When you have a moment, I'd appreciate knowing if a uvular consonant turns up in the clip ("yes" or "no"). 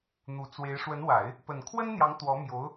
no